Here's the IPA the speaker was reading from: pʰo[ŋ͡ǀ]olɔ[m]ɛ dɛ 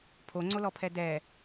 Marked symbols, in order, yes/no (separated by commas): yes, no